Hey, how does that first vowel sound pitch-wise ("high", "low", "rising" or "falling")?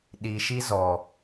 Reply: low